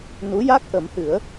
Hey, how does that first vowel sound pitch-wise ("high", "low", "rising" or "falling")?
rising